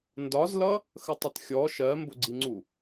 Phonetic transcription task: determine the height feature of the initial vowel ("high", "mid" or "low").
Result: low